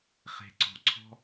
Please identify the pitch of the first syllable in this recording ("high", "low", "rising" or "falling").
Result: low